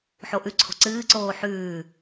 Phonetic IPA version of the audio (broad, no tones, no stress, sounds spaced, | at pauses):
ħ o ʔ ʉ ǀʰ o̤ ǀ ɨː ǀ oː ħ ʉː